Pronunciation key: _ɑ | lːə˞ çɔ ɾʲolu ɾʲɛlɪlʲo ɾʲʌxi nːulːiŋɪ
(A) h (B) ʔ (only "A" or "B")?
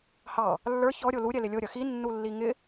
A